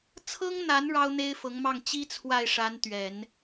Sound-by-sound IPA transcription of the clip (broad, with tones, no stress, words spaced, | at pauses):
t͡sʰɤ˥ŋn̪a˧˥n ɻɑ˥ʊ̯n̪e˥ɪ̯fɤ˧˥ŋmɑ˥˩ŋ t͡ɕi˥ t͡sʰwa˥˩ɪ̯ʂa˧˥n t̪ɥɛ˨˩˦n